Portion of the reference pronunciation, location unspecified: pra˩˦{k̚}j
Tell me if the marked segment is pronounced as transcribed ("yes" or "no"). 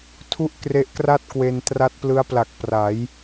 no